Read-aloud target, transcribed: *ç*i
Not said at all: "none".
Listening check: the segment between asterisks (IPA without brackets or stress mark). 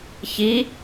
ç